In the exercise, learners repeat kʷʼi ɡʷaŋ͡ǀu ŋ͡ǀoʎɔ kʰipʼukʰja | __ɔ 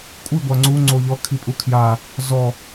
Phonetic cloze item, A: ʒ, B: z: B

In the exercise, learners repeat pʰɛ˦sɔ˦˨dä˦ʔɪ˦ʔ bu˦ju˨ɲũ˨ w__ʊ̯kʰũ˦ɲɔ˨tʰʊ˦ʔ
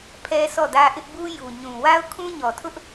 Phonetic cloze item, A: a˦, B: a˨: A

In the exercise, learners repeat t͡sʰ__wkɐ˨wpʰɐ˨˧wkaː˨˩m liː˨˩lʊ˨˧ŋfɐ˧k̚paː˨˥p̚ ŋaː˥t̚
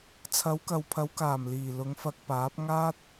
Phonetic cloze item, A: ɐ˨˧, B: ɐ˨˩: A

